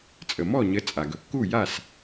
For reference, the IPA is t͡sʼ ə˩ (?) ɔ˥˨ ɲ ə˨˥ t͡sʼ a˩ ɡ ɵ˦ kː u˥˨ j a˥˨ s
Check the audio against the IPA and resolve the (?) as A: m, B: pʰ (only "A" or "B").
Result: A